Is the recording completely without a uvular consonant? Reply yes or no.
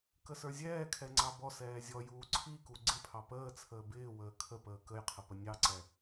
no